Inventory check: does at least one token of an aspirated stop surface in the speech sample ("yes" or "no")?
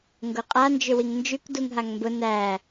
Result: no